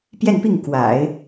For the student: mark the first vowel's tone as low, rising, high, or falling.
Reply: falling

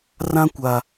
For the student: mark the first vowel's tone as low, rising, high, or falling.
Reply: high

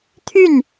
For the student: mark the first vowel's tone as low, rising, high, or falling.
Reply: falling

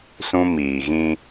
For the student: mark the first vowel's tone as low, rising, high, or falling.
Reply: high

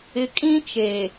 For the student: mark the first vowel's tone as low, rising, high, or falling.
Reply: low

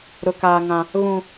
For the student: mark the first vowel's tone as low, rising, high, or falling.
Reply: high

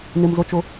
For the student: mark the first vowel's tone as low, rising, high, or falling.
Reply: low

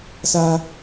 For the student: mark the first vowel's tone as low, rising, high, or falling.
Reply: low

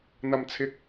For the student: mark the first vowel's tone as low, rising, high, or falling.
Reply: low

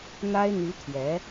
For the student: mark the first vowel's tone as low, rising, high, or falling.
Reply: high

